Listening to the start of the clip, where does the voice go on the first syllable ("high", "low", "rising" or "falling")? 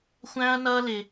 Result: high